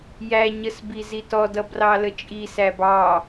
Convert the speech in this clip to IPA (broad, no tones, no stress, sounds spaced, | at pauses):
j æ ɲ ə s b i z i t ɔ d ʌ b r ɑ l ə t͡ʃʼ i s æ b ɑ